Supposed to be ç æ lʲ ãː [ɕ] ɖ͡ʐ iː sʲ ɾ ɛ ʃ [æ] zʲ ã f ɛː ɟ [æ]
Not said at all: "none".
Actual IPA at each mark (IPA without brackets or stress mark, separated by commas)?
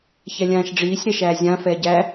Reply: ʃ, æː, æ